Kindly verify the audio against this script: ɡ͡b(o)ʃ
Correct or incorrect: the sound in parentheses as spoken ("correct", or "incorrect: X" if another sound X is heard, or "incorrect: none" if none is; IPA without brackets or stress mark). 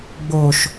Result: correct